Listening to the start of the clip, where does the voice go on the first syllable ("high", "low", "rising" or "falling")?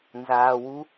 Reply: low